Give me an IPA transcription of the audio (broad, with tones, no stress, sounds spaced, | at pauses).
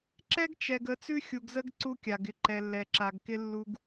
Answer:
ǁ ɛ˦ ɡ t͡ʃ ɛ˨ ɡ ə˨˦ t͡s ʉ˦ xʲ u˨ ɡ z ə˦ ɡ ǀ u˦ kʲ a˨ ɡ ɪ˦ ǃ ɛ˨ lː ɛ˨ ǁ a˨ ɡ k ɪ˦ lː u˦ ɡ